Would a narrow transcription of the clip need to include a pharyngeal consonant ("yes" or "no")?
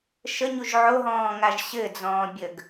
yes